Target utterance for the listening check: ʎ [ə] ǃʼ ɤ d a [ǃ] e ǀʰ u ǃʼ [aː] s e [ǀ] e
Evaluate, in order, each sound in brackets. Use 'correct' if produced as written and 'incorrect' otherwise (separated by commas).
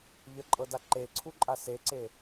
correct, correct, incorrect, correct